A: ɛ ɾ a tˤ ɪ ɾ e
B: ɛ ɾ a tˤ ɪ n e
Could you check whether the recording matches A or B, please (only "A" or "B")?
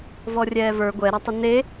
B